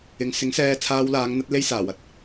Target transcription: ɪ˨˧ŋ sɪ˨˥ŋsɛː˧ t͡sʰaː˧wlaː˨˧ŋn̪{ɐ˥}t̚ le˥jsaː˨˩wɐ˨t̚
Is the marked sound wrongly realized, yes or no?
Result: yes